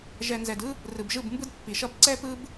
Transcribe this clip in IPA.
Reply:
ʒ ɛ˨ n z ɛ˨ d ɯ˦ | r ɯ˨ b ʒ ɯ˦˨ b m b ɯ˦ d pː i˨ ʃ ʌ˦ b ǀ ɛ˦ p ɯ˦ b

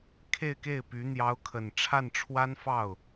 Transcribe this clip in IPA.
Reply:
kʰ e˥˧ ɪ̯ k e˥˩ ɪ̯ p y˧˥ n̪ j ɑ˧˥ ʊ̯ kʰ ə˨˩ n ʈ͡ʂʰ a˥˩ n ʈ͡ʂʰ w a˥ n f ɑ˥˩ ʊ̯

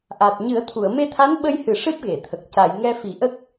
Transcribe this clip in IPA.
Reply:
ʔ a˨˩ t̚ ɲ ɨ˨˩˦ ə̯ t̪ʰ u˨˩˨ ə̯ m e˧ t̪ʰ a˧˥ n ɓ ə˧ j h ɨ˨˩ ʂ ɨ˦˥ p̚ ɣ e˨˩˨ t̪ʰ ə˨˩ k̚ c a˨˩˨ j ŋ ɛ˧ f i˨˩˦ ʔ ə˦˥ k̚

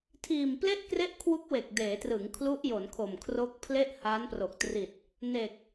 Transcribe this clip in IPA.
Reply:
tʰ iː˨˩ m p l e˥˩ ʔ k r e˥˩ ʔ kʰ w u˦˥ k̚ w e˨˩ k̚ d eː˩˦ t r ɯ˩˦ ŋ kʰ l u˦˥ ʔ j o˩˦ n kʰ o˨˩ m kʰ r o˦˥ k̚ pʰ l e˥˩ ʔ h aː˦˥ n p r o˨˩ k̚ t r i˨˩ t̚ | n e˨˩ k̚

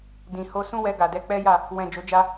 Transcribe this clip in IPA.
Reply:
d ĩ˨ h o˧ s ũ˦ w ɛ˧ ɡ a˨ d ɛ˧ k͡p ɛ˦ j a˦˨ | w ɛ̃˨ d͡ʒ o˨˦ d͡ʒ a˦

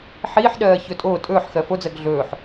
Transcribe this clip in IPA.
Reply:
ħ iː ħ ɗ ɜː ç ɵ tʼ oː tʼ ɵː ħ x ɜ f o d͡z ɜ ɡ ɮ ɵː ħ

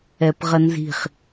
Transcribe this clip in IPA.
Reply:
ɛ p ʁ ə n z i̤ χ

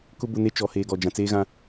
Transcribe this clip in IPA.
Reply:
k ʊ˦ b ʊ˦ n e˦ t͡ʃ ɔ˨ h eː˨ ɡ ɔ˨ d͡ʒ ã˨ t͡s eː˦ ɣ ã˦

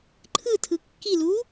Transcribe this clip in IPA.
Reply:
ǃʰ ɯ tʰ ɯ kː i l uː

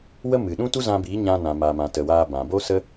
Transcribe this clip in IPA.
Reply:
w ə˦ m ɨ˨ ɗ ũ˦ t u˦ z ã˧ b iː˨˦ ɲ ã˧ n ã˨ m aː˨ m ã˨ t ə˨ w aː˧ b ã˨ b o˦ s ə˦

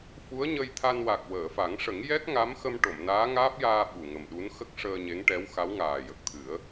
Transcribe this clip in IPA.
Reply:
f u˧˥ ə̯ ɲ ə˧ j t̪ʰ a˧ n w a˨˩ k̚ w əː˨˩˨ f a˨˩˦ ŋ ʂ ə˨˩˦ ŋ j ɛ˦˥ k̚ ŋ a˧˥ m x ə˧ m ʈ o˨˩˨ m n aː˧˥ ŋ aː˦˥ p̚ j aː˧ ɓ u˨˩ ŋ ə˨˩ m ɗ u˧˥ n x ə˦˥ k̚ ʂ əː˧ ɲ e˧˥ ŋ ʈ ɛ˧˥ w x a˧˥ w ŋ aː˨˩ j ə˨˩ k̚ t̪ʰ ɨ˨˩˦ ə̯

